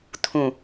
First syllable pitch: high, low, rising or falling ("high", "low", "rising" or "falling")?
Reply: low